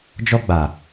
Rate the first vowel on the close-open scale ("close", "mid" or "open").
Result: mid